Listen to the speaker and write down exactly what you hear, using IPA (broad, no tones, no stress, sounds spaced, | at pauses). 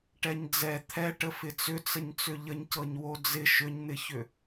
ʈ ɛ ɲ d͡z ɛ t̪ʰ ɛ ʈ ə f ɪ t͡s ʏ t͡s ə ɲ t͡s ʏ ʎ ə ɲ c ɤ ɲ w o d͡z ɪ ʃ ʏ ɲ n̪ ɪ ç ʏ